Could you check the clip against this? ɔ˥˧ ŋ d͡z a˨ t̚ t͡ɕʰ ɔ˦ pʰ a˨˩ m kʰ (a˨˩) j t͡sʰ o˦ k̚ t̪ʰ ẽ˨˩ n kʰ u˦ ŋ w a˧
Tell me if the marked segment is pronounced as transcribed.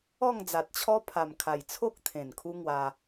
yes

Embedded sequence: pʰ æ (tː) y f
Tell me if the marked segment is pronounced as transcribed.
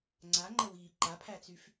no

